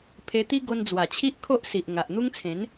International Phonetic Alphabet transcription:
pʰ e˧ t̪ i˦ ɡ o˧ n d͡z w a˨˩ t͡ɕʰ i˦ ʔ kʰ o˦ ʔ s i˨ ʔ ŋ a˨ ʔ n̪ u˦ ŋ t͡sʰ ẽ˨˦ n

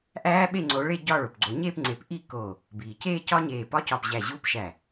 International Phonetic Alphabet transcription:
ʔ æː˦˥ ɓ e˥˧ ŋ͡ǀ o˨˦ ɭ e˥˧ ɟ ɒ˥˧ ɭ o˩ p ɡ͡ǀ o˨˩˦ ɲ eː˥˧ p ŋ͡ǀ e˨˩˦ p ʔ i˥˧ k o˧˩ | b iː˩ c eː˥˧ c ɒ˦˥ ɲ eː˧˩ p ɒ˦˥ c ɒ˧˩ p ʑ æ˧˩ ʑ u˦˥ p ʃ æ˧˩

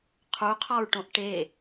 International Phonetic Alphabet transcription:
qʰ u qʰ ɒ ɹ ʈ õ ʔ ʈ e

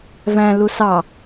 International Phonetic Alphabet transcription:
v æ̃ l u s ɑ

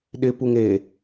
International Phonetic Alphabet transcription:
ɗ ɪ p u ŋ e

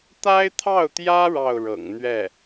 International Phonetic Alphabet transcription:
t̪ a˥ ɪ̯ t̪ʰ ɑ˥˩ ʊ̯ t̪ j ä˥ ɻ ɑ˥˩ ʊ̯ ɻ ɤ̰˨˩ ŋ n̪ ɥ ɛ˥˩

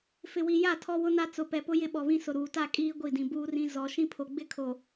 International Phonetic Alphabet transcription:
f ɪ˨ w i˨ j a˦˨ tʰ ɔ˦ w ʊ˦ n a˦ t͡s ʊ˨ p ɛ˨ p ʊ˦ j ɪ˦ ɓ ɔ˨ β ĩ˦ s ʊ˨ ɾ uː˨ t a˦˨ kʼ iː˦ ɡʷ i˦˨ d ĩ˨ b uː˦ r ĩ˦ z ɔ˦ ʃ ĩ˦ pʰ o˨ ɡ͡b ɪ˦ kʰ o˨

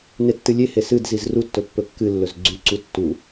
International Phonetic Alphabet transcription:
n e tː ɨ lʲ e h e s ɨ d z i z r u tː ɵ pː ɵ kː ɨ lː ɵ z ɡ͡ǀ ʉ ǀ u tː u

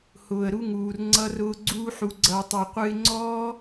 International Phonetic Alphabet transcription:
h ʊː˧ ə̯ ɾ u˦ ŋ uː˧ r ŋ͡ǀ ʌ˦ r ʊː˦ ɡ͡ǀ uː˦ ħ u˧ ɡ͡ǀ ʌː˧ tˤ o˧ qʷ ɨ˧ ɪ̯ ŋ͡ǀ ɔː˦

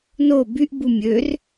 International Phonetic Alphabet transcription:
n o b y ʔ b u mʲ ø r

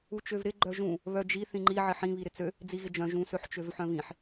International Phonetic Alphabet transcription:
u t͡ʃ ø v ɾ ɪ ɡ͡ǃ œ ʒ ũ | β œ d͡ʒ i θ ĩ ŋ͡ǃ i ʕ ɪ ħ ĩ β i ɾ ɪ t͡s ø | d͡z i ɣ ɪ d͡ʒ œ̃ ʒ ũ s ø ħ t͡ʃ ø v ħ œ̃ v ĩ ħ

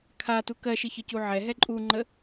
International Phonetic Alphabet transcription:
kʰ a t u k ɜ ʃ ɨ ç ə c u ʕ ɛ ɦ ɛ ǃʼ u ŋ͡ǃ ə

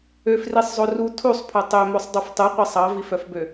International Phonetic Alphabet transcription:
ø f r i sˤ zˤ o r u tʰ u sˤ pʰ œ tˤ ø m o sˤ dˤ u f tˤ u qʷ i sˤ ɑ v i f œ f b ø

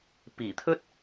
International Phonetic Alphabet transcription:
p iː˨˩ t̪ʰ ɵ˥ t̚

